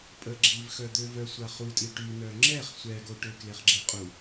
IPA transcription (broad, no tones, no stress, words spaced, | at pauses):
pʼəɡ͡ǁiv xœd̪øvœ sʷaχutʼi ʈy nœŋ͡ǁɛχ sʷɛɡo ʈøkleχɡ͡ǁeqʼu